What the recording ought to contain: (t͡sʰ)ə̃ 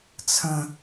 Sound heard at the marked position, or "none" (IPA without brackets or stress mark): t͡sʰ